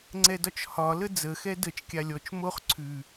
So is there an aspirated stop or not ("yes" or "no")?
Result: yes